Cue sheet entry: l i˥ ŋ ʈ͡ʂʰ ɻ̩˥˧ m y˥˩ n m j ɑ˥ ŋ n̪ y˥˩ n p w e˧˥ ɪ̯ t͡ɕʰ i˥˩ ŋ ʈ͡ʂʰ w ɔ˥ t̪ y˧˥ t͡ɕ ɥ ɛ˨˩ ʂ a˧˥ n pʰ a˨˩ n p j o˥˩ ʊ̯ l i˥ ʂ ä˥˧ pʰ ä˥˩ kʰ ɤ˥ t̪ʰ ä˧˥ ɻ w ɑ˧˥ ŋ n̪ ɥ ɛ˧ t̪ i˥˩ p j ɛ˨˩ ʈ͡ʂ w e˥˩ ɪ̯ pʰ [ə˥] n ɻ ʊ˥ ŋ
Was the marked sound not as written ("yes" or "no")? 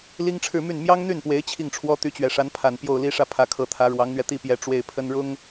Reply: no